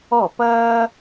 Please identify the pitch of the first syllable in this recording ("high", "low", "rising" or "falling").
falling